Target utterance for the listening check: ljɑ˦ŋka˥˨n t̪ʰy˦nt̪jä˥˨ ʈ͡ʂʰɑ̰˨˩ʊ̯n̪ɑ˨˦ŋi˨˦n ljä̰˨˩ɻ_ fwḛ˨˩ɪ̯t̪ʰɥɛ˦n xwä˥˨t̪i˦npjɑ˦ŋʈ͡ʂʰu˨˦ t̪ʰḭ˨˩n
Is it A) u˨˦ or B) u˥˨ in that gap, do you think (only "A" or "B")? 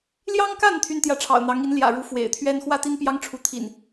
A